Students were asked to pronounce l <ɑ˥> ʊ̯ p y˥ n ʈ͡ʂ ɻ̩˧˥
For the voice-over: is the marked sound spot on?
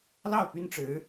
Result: no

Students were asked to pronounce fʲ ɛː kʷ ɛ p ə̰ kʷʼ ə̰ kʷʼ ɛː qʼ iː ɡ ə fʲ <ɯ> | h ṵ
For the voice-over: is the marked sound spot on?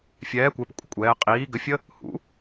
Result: no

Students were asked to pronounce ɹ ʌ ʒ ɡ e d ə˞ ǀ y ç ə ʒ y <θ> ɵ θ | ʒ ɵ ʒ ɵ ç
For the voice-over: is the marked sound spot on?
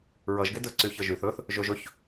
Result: yes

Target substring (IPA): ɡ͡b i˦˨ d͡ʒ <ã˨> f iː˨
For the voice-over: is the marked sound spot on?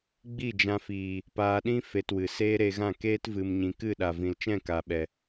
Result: no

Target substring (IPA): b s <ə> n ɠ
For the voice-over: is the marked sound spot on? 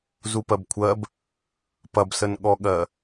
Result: yes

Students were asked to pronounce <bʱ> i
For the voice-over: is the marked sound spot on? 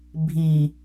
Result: yes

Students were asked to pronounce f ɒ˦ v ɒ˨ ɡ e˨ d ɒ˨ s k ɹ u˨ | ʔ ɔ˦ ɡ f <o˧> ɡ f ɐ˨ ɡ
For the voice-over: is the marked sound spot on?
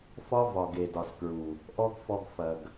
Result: no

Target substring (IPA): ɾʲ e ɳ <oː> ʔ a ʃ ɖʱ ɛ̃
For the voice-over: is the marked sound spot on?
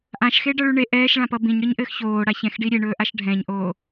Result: no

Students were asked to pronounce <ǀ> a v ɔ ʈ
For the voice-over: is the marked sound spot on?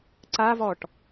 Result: yes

